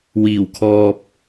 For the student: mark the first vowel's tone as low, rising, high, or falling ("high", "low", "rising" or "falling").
low